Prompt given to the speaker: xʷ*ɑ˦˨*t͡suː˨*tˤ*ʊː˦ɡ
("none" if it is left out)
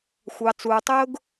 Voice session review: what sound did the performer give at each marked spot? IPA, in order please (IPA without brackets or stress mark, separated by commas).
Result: ɑ˨, tˤ